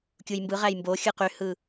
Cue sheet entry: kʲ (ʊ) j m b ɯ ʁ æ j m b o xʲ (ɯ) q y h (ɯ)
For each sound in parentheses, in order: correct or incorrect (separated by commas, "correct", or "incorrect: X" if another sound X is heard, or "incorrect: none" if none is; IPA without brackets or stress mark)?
incorrect: u, correct, correct